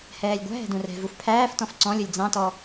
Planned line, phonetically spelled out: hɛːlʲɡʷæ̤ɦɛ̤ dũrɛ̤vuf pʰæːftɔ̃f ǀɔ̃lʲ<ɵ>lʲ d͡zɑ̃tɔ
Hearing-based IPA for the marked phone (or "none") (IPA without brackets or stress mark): ɵ